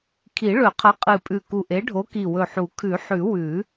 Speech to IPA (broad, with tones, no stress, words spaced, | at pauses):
kʰi˨˩˦ɭɵ˨˩˦qʰɐ˨˥ qʼɨ˧˩pʼʉ˧˩ ku˧˩ʔe˨˥ɖʱo˨˥ ki˧˩wɵ˧˩ħu˨˩˦ kʰʉ˨˩˦ħʉ˨˩˦ wʉ˨˩˦